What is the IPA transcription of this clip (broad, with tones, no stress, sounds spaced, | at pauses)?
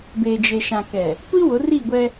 b e˨ d͡ʒ e˨ ʃ ã˨ k ɛ˨ | kʷ i˦ w ʊ˨˦ r i˦˨ ɡʷ ɛ˦